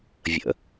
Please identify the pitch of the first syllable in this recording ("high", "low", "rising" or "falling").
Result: low